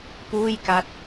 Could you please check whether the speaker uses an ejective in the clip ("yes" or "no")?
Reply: no